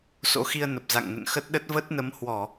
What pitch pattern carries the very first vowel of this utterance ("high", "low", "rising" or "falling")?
rising